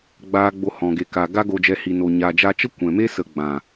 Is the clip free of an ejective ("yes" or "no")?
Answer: yes